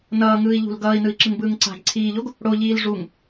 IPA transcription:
n ʌː ŋ ɯː i̯ ʎ ṳ l ɡ ʌː i̯ n ɯ i̯ ǁ ɯ ŋ b ɯː ŋ ǀ a̤ ɡ ǀʰ iː ʎ o ɡ | ɽ o ʎ iː l ʐ u ŋ

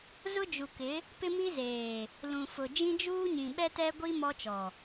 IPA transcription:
z ʊ˦ d͡ʒ u˨ k ɪ˨˦ | p ɪ˦ m i˦ z eː˨ | l ũ˨ f ʊ˨ d͡ʒ ĩ˦ d͡ʒ uː˦ ɲ ĩ˨ ɓ ɛ˦ t ɛ˦ ɡʷ i˦ m ɔ˦ t͡ʃ ɔ˨

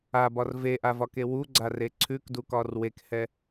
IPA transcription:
a b ɒ r v e ʔ a v ɒ k e w u ɡ͡ǀ a r e ǀʰ ʉ k d u k ɒ r w e k h ɛ

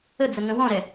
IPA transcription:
ə d͡z ə ŋ ə̃ w ɔ̃ ɾ ɛ

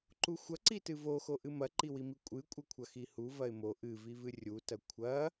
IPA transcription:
ǃ u xʷ ɐ ǀ i t ɨ v o x o ʔ ɨ m ɐ ǃ i w i m i kʷʼ ɨ kʷʼ ɘ kʷʰ ɐ x i h u v ɐ ɪ̯ m o ʔ ɨ v i v ɨ rʲ u t ɐ kʷʰ ɐ

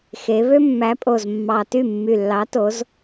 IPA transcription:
x e˩˧ β ø˦ mː æ˨˥ pʼ o˨˩ z mː ɑ˨˩ t y˥˩ mː y˨˩ lː ɑ˨˥ t o˨˥ z

